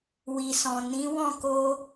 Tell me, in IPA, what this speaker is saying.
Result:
w i˨ s ɔ̃˨ n ĩ˨˦ w ɔ̃˦˨ k o˧

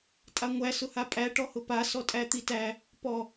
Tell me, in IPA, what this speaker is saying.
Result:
tʼ a ŋʷ æ s ʊ h a pʼ æ ʈ ɔ h ʊ p a s ɔ tʼ æ t̪ i t æ | p ɔ

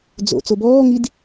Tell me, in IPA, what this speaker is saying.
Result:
d͡z o̰ t͡s o b ɔː ŋ i d

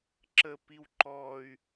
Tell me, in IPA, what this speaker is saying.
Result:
ǁ ə p i w ǃ ɔ y̯

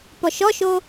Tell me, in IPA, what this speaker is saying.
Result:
p ɔ ʃ ɔ ʃ o

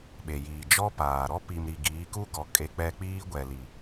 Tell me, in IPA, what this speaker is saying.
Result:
ɓ e˨ j iː˨ d͡ʒ ɔ˦ p aː˨ ɾ ɔ˦ p i˨ m ɾ i˨ ɡ iː˨˦ k u˦ ɡ ɔ˨ kʼ e˨ k͡p ɛ˨ k͡p iː˦ ɡʷ ɛ˨ l i˨

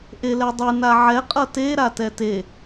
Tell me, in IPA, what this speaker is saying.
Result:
ʔ e l ɛ dˤ ɯ n a ʕ ɛ qʼ ʌ t e ɾ a t ɛ t e

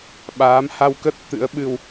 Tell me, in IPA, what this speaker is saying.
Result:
ɓ aː˨˦ m h a˧ w k ə˦˥ t̚ t̪ ɨ̰˧˥ ə̯ ɓ ɨ˧ w

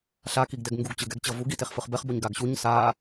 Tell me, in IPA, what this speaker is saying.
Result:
ɬ a k i ɡ d ɛ ɡ ŋ ɡ u ɡ t͡ɕ ɯ ɡ ɛ ɡ t͡ɕ ʌ v u ɡ i t e χ f ɯ χ b ɛ χ b o ɲ ɡ a ɡ ɕ u ɲ s a

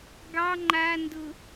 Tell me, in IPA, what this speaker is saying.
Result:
ɡ ɑ ŋ͡ǃ a n d ʊ

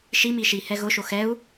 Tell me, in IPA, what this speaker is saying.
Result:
ʃ i m i ʃ i h ɛ ɣ ʊ ʃ o x ɛ u̯

